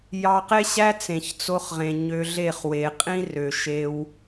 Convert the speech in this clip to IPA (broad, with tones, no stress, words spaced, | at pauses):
jɑ˧qe˦ɕæ˦ t͡sẽ˨çt͡so˧χʁẽ˨ ɲø˧ɮe˦˨χwe˨ qʼĩ˦rø˨ʃe˧w